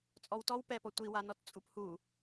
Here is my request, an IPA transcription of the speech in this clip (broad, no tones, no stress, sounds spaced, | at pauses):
t͡sʼ ɔ w t ɔ w p ɛ p ɔ tʷ i w a n ɔ t t͡sʼ u p h u